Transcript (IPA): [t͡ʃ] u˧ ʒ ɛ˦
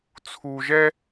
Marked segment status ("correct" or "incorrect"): incorrect